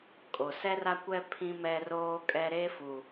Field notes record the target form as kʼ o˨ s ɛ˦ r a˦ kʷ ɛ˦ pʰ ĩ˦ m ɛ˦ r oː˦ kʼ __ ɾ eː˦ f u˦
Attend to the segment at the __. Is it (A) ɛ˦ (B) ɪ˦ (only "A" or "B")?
A